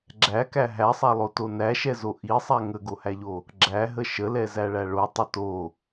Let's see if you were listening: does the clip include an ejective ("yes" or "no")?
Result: no